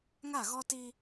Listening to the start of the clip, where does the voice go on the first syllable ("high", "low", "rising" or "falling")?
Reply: falling